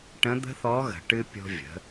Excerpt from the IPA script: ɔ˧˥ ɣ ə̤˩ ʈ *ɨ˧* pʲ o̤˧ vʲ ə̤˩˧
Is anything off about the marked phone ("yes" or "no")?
no